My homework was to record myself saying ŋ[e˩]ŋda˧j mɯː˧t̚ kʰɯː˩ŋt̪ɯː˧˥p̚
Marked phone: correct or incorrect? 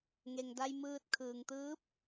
correct